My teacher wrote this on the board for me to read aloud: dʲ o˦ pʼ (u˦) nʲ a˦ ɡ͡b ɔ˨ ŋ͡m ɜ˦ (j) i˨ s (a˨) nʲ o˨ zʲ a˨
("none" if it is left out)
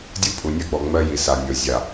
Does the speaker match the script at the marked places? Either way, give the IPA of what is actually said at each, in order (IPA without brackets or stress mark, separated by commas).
u˨, j, a˨